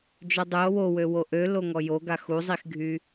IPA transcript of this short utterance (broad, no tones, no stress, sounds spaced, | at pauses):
d͡ʒ œ dˤ ø o̯ w o w ø w o ʔ ø l o ŋ ɔ j o ɡ a x u zˤ i x ɡʱ y